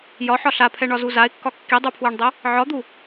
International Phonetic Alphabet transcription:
jɒħɒ ɬapʰɛɳɒzu zaɪ̯kːɒ kːidˤupʰweɳdˤe | ʕɒd̪u

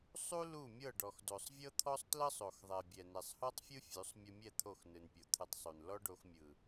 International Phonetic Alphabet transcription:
sˤu˦ lu˦˨mʲɤ˦˨ ɖɔ˨xdo˨sˤvʲɤ˦t̪ʰɔ˦sˤ tlɤ˦sˤo˨xðˤɛ˨ bʲɛ˨nɛ˨sˤhɔ˦tˤfʲɯ˦ fʲu˨˦sˤ mʲɯ˧mʲɛ˦˨ t̪ʰo˦˨xnɯ˨npʲo˨ t̪ʰɯ˧tˤsˤu˨n lɔ˦ɖo˧xmʲɯ˨

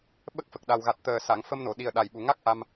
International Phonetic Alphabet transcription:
ɓə˦˥k̚fə˨˩k̚ɗa˨˩wɣa˨˩t̚ t̪əː˨˩ sa˨˩˨ŋfə˧mno˨˩˨ɗi˨˩ə̯ ɗa˨˩jɓu˨˩ ŋa˦˥k̚ ʔa˧m

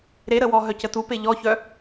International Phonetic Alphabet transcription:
ɾeɾəwɔ ɦœcətupe ʎɔçœ

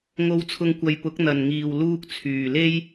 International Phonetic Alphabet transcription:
ŋo˧wt͡sʰʊ˧ŋkʷɐ˨˧j pʊ˨˥k̚n̪ɐ˨n ŋiː˨wluː˧k̚t͡sʰyː˨le˥j

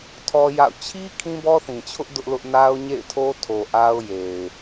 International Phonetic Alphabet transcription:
tʰɔ˦ja̰˦˨ʊ̯ t͡ɕʰi˦ kʰĩ˦bɔ˦θĩ˨t͡ɕʰʊ˦ʔ dʊ˦ʔlʊ˦ʔ na˦ʊ̯ɲḛ˦˨ɪ̯tʰo˦ tʰo˨ʔa˦ʊ̯ je˨ɪ̯

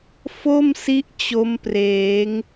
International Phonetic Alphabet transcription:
fo˥˩msi˦˥ʔ t͡ɕo˦˥mpreː˩˦ŋ

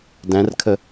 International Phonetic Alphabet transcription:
dæ̃rkʰə

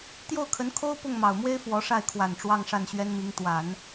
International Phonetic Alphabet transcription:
t̪jo˥˩ʊ̯kʰə˧˥nkʰo˥ʊ̯ pʊ˥˩ŋmɑ˨˩ʊ̯mwe˥ɪ̯ fwɔ˧˥ʂa˥˩ɪ̯kʰwa˨˩n ʈ͡ʂwɑ˥˧ŋʂa˥˩nɕɥɛ˥nmi˧˥ŋ t̪wa˨˩˦n

